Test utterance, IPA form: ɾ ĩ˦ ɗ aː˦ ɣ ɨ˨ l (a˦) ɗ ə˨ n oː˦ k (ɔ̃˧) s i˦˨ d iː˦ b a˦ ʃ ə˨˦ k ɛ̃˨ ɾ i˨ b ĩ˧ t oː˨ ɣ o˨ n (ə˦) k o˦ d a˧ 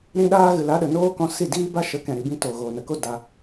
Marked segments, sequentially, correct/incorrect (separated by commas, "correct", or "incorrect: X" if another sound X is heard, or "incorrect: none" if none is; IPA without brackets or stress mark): incorrect: a˨˦, correct, incorrect: ə˨